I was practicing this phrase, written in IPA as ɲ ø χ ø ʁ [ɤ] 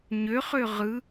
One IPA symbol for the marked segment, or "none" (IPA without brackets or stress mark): ɯ